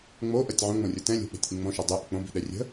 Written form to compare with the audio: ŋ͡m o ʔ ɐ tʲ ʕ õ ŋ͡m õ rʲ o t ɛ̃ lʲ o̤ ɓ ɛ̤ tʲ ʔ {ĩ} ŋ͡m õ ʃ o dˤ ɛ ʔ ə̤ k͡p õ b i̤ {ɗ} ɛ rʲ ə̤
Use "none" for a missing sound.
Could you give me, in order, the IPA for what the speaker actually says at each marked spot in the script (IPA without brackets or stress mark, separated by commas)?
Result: ĩ, ɗ